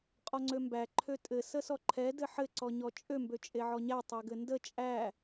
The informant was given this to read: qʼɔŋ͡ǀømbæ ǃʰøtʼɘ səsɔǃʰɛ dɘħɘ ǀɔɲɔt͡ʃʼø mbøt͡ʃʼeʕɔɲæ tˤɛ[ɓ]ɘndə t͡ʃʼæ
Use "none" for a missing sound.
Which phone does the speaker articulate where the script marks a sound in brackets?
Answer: ɡ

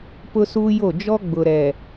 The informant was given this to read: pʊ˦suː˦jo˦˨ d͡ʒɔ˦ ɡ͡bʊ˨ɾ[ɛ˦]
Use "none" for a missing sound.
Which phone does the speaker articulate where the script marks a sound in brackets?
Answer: ɛ˨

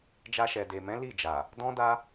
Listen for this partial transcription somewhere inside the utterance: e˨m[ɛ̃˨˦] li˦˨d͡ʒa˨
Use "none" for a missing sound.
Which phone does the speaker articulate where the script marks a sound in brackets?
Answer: ɛ̃˨˦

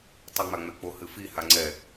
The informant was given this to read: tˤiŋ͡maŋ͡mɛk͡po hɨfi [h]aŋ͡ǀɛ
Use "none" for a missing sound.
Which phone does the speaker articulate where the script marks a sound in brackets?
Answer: h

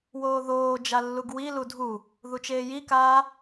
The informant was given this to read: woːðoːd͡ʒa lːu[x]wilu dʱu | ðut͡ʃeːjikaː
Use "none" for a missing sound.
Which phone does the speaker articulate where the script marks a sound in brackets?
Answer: ɡ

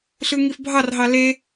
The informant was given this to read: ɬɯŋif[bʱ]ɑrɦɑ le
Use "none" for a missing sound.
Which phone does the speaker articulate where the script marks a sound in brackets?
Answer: bʱ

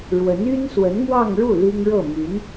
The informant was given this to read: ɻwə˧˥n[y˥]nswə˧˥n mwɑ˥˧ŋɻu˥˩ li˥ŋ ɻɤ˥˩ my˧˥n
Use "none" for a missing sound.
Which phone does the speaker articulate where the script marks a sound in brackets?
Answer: y˥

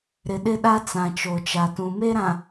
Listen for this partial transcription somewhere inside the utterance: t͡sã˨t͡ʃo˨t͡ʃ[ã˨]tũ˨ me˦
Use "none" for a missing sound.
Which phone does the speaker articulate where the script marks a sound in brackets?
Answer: a˨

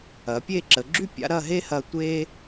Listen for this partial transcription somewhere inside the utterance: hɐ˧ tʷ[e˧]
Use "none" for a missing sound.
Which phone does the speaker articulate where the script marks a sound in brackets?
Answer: e˧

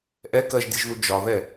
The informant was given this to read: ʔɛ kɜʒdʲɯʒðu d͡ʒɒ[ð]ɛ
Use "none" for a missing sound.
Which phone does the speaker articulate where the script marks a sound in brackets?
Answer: ð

